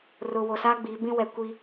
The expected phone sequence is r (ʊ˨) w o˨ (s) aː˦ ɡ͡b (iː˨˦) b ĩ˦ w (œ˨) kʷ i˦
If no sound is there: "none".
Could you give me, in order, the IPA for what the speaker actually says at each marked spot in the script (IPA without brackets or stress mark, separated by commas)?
ʊ˨, s, iː˨˦, ɛ˨